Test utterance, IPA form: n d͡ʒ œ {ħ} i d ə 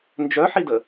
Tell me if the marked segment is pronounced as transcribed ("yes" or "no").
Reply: yes